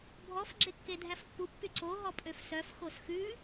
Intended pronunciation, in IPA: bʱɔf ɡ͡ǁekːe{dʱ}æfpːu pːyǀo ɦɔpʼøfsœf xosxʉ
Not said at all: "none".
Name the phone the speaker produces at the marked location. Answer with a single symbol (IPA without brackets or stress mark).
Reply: dʱ